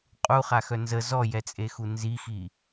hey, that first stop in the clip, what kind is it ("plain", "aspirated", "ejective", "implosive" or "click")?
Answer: ejective